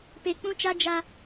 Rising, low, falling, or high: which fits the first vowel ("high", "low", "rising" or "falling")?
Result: low